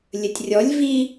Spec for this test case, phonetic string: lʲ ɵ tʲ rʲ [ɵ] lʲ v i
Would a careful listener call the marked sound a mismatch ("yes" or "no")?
yes